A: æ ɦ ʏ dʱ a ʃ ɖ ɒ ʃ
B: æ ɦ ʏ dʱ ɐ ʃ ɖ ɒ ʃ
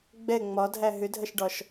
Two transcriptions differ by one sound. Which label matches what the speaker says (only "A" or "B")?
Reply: B